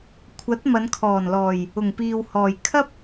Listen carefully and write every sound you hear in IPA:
kʷʰ ɐ˨˥ t̚ m ɐ˨˧ n kʰ ɔː˨˩ n l ɔː˨˩ j | ʊ˨˩ ŋ p iː˨ w h ɔː˨˩ j kʰ ɐ˥ p̚

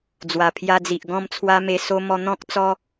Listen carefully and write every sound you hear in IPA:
d͡z w a˨˩ pʰ j a˧ d͡z i˨ ʔ ɡ ɔ̃˥˧ m t͡sʰ w a˦ m e˧ s o˦ m ɔ˧ n̪ ɔ̃˦ k̚ t͡s ɔ˦

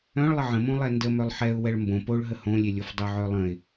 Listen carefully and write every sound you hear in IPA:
œ̃ ɭ lˠ ə ʕ ə̃ m õ lˠ ɛ n d ə m œ lˠ ħ ɛ ʊ̯ w ɛ ɭ m b õ p o ɭ ɦ ə h õ lʲ e lʲ o f dˤ œ ʕ œ lˠ ə̃ ɪ̯

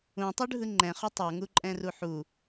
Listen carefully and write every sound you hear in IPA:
ũ tˤ u ɖʱ ɯ ŋ͡ǃ ɛ̃ χ u tˤ ɔ ŋ u ǃʼ ɛ̃ r u ħ u

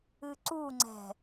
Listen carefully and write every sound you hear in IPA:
ɨ ǀ u ŋ͡ǀ ɛ̤

